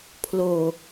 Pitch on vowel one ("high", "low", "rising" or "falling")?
low